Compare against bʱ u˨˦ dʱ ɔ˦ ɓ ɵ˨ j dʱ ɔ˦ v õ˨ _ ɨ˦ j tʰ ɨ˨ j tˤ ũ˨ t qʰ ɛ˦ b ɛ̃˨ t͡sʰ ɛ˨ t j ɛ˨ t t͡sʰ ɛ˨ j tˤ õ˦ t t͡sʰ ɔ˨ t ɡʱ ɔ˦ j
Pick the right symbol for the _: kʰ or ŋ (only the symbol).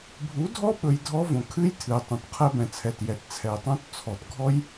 kʰ